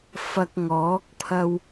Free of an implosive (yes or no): yes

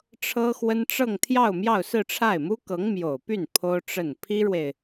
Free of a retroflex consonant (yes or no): no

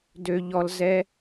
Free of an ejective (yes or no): yes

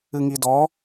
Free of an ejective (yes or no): yes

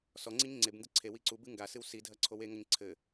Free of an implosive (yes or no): yes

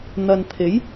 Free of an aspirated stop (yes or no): no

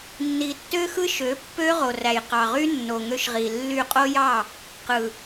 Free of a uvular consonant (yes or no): no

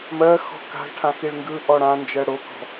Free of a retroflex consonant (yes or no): no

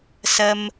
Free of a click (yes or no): yes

